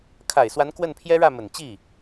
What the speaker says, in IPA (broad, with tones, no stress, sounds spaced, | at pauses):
kʰ a˨˩ ɪ̯ s w a˧˥ n k w ə˥˩ n pʰ j ɛ˥ ɻ ä˥˩ m ə˨˩ n t͡ɕ i˥˩